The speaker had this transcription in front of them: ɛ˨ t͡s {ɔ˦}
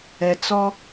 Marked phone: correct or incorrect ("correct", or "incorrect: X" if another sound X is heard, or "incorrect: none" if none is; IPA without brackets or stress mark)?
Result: correct